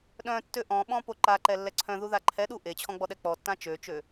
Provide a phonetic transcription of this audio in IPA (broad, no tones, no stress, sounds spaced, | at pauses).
ɗ œ̃ tː ø ʔ ɔ̃ ɓ ɔ̃ p o ǃ a ǃ ɛ lː ɛ ǀʰ œ̃ ð u ð a ǃʰ ɛ ɗ u ʔ e t͡ɕʰ ɔ̃ ɡ͡b ɔ ɗ ɛ k͡p ɔ tː ã t͡ʃ ø t͡ʃ ø